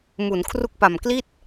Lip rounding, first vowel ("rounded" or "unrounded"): rounded